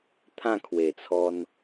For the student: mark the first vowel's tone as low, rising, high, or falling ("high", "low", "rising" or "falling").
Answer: falling